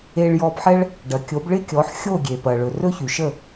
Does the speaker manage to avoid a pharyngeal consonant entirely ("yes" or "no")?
no